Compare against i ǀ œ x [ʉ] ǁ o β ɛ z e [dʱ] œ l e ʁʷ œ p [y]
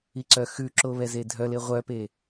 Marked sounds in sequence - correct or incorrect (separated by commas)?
correct, correct, incorrect